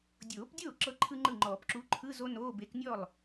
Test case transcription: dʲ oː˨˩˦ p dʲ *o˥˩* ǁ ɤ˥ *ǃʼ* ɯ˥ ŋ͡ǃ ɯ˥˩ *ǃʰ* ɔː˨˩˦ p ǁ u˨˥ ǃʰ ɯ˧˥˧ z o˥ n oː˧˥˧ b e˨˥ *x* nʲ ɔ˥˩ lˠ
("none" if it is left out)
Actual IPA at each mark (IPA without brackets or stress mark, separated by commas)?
oː˥˩, ǃʰ, ŋ͡ǃ, k